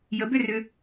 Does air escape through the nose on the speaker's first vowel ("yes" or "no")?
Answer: no